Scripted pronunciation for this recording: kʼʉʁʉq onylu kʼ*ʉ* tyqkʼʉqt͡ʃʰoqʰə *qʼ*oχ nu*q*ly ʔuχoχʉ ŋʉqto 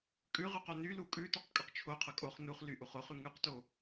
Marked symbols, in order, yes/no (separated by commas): yes, no, no